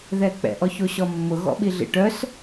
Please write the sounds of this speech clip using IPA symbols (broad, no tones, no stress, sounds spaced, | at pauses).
ð ɛ k͡p ɛ̰ ʔ ɔ ç o ɕ ɔ mː ʊ ɣ ɔ̰ ɓ i ɮ ḭ ʈ œ s